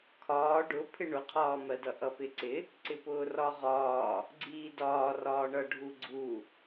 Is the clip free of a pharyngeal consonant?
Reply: yes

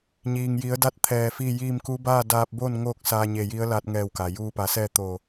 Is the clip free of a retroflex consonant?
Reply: yes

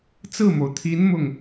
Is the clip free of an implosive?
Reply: yes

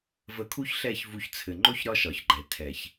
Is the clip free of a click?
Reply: no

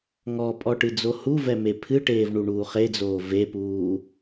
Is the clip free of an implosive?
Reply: yes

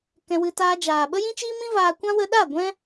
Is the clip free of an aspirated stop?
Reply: yes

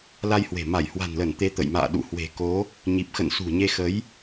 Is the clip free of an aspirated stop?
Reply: yes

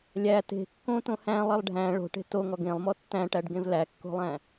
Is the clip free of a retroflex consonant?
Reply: no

